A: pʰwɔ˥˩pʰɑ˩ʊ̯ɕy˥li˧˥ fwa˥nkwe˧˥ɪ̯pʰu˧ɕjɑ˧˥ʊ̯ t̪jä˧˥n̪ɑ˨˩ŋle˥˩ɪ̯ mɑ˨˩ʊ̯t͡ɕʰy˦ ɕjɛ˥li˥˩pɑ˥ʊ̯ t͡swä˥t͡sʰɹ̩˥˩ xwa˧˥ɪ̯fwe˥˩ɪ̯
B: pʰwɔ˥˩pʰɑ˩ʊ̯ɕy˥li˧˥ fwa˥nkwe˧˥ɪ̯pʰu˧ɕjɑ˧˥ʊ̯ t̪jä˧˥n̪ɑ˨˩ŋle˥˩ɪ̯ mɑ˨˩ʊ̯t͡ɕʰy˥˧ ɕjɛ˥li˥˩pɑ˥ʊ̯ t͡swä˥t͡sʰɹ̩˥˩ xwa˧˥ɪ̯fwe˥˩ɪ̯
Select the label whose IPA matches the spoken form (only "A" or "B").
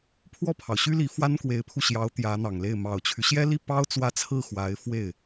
A